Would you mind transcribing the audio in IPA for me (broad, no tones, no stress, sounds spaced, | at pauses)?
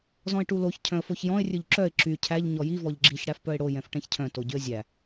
z ɔ̃ ɪ̯ ʈ u l o ç cʰ œ̃ ə̯ f o ç j ɔ̃ ɪ̯ rʲ ɵ ʎ ǁ œ ɪ̯ ǁ y cʰ æ ʎ ɲ ɔ j i v ɔ ʎ ɡ͡ǁ i ç ɽ æ f p œ ɪ̯ ɽ o j ɛ̃ f ʈ ɛ̃ ç cʰ œ̃ t o ɟ y ə̯ zʲ æ